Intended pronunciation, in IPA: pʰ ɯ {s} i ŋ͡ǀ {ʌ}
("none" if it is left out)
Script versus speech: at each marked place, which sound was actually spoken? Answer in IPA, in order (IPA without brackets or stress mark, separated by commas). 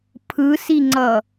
s, ʌ